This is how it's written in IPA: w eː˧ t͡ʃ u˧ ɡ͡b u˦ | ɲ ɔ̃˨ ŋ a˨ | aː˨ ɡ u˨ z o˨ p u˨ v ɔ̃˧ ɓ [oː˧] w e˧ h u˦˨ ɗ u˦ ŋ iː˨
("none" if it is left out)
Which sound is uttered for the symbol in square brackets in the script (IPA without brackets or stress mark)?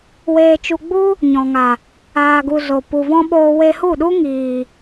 oː˧